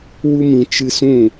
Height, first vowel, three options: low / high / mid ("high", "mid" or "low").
high